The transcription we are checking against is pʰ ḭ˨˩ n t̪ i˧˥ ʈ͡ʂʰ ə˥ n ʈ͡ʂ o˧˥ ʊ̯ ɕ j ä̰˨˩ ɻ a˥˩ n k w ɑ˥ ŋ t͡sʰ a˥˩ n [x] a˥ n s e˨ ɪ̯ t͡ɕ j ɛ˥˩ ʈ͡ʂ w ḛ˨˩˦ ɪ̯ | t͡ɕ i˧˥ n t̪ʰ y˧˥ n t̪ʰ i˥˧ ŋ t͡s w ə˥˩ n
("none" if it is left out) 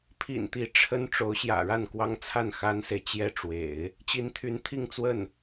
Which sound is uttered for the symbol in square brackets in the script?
x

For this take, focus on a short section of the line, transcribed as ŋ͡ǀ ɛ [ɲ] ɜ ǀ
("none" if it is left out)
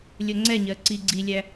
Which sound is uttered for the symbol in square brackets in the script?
ɲ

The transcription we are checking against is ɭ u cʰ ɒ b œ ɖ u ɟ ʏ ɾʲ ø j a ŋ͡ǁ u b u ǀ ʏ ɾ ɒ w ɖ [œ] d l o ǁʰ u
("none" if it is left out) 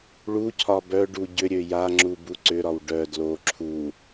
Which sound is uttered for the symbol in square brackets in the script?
œ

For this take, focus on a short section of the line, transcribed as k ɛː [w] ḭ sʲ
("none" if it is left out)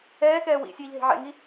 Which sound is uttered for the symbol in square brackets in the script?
w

